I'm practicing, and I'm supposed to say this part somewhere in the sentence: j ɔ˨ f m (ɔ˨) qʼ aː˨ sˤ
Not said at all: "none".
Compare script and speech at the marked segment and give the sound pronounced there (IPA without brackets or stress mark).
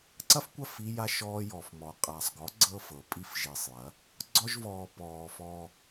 ɔ˨